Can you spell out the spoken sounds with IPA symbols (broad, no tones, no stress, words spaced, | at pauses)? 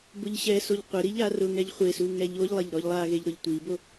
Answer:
bʊʎɕɛsoʎ qʷɪɾi ʎarʊŋɛʎ χʷesu ŋɛʎoʎlˠeʎ ɾɔʎlˠaɣeʎ ɾʊʎtʷibo